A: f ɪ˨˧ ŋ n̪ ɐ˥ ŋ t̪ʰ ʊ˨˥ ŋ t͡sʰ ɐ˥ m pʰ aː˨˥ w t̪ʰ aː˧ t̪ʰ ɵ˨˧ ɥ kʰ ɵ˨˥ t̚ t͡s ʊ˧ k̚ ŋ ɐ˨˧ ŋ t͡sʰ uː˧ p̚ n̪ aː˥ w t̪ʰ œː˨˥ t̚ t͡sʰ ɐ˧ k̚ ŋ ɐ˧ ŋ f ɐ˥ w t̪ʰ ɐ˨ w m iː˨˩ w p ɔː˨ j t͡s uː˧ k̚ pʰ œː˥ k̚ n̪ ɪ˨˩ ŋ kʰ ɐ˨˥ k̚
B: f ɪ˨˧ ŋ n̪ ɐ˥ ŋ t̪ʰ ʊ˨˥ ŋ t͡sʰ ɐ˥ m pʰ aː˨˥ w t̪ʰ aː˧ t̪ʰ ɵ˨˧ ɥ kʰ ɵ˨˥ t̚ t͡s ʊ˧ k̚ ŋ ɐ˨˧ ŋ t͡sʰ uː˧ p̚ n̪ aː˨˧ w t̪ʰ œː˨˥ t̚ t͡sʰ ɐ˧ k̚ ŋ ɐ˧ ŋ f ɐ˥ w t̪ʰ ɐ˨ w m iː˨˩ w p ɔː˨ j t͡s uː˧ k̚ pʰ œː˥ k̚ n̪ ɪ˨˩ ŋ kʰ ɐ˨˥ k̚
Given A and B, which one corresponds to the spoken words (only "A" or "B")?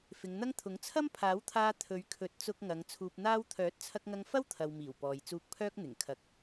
A